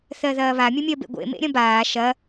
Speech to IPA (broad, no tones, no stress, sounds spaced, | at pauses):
θ ɜ ð ɐː β a mʲ ə mʲ ɜ b ḛ ɡʷ ḛ m ḛ ɾʲ ɐ̃ b aː ʃ ɐ